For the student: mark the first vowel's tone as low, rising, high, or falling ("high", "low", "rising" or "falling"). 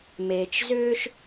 low